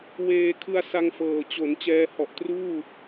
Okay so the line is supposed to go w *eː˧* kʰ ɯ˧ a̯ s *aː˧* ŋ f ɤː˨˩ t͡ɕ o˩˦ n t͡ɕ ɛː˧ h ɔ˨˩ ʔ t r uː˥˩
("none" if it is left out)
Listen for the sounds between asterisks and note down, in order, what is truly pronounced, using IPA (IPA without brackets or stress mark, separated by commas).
eː˧, a˧